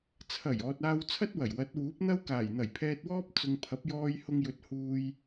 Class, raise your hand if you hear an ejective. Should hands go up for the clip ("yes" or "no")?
no